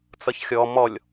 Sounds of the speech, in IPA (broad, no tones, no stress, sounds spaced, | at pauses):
t͡s ʌ ç xʲ ɔ m ɔ lʲ